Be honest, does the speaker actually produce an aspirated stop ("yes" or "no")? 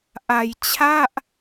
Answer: yes